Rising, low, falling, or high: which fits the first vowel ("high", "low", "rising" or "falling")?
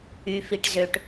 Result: low